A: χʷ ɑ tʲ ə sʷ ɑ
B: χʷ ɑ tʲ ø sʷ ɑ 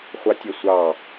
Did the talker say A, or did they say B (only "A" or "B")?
A